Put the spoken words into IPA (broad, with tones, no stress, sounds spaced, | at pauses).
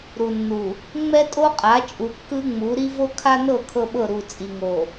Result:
ɾ u˨ nː u˨ | ŋ͡m ɛ˦ tʼ o˦ qʼ a˨˦ t͡ʃʼ u˨ kː ɯ˦ ŋ͡m u˨˦ ɾ i˦ v o˦ kʰ a˦ n ɤ˦˨ kʰ ɤ˦ ɓ ɤ˦˨ ɾ u˨ t͡sʼ i˨ ŋ o˨